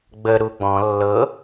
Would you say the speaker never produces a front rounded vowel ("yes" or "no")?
yes